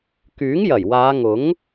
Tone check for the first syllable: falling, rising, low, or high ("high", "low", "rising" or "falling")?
rising